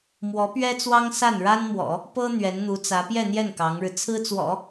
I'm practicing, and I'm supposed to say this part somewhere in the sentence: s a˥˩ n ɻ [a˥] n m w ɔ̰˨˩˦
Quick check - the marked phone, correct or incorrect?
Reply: correct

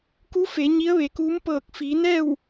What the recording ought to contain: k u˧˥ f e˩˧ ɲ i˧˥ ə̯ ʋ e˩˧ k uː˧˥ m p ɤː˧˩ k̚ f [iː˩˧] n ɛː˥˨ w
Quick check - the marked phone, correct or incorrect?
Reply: correct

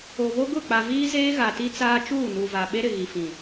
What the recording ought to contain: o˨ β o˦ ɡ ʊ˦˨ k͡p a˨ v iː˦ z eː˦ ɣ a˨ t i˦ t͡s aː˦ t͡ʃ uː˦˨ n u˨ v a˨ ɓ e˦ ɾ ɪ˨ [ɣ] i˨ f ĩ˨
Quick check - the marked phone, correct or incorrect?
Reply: correct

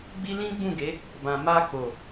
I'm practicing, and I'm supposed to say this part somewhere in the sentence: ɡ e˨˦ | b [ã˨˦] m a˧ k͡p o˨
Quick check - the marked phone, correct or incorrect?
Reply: incorrect: ã˨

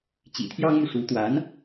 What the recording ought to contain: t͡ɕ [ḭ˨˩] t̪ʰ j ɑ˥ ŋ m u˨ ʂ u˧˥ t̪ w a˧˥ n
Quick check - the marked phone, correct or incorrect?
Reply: correct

